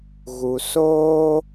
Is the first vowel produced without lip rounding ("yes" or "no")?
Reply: no